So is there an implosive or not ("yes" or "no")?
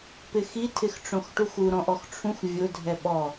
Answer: yes